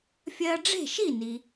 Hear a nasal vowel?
no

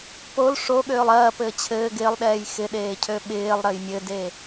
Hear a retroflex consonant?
yes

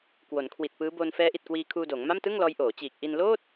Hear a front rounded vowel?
no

